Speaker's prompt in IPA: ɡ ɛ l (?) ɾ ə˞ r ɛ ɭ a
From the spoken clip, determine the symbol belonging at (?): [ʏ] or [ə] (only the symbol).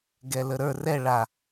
ə